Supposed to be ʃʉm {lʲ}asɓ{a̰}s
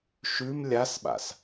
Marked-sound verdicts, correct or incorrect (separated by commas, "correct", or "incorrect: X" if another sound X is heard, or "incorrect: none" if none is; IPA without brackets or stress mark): correct, correct